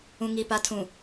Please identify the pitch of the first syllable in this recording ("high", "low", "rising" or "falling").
low